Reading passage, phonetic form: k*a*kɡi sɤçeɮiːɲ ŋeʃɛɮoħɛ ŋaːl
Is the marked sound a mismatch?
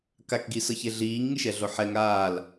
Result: no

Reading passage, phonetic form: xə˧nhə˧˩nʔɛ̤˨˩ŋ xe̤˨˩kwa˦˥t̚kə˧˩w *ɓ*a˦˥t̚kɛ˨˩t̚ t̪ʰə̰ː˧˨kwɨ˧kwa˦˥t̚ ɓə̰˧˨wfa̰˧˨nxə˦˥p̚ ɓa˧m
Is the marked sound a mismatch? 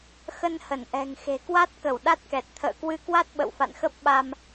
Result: yes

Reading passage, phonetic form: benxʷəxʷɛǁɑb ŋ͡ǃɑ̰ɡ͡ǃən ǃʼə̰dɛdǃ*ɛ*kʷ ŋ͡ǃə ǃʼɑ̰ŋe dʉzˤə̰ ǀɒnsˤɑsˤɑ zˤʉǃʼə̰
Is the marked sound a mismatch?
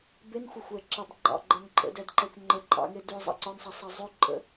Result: no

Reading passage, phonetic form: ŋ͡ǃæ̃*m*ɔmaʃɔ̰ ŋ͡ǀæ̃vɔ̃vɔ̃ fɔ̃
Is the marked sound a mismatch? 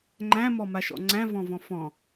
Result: no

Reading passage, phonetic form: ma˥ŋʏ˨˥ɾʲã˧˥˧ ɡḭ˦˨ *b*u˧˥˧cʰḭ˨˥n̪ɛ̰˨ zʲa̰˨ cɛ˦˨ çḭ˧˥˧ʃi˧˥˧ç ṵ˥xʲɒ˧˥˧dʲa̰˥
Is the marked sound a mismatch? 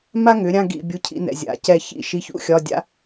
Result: yes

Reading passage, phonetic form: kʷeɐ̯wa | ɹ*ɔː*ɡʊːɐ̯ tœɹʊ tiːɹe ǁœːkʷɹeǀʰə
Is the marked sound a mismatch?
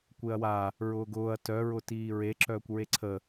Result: yes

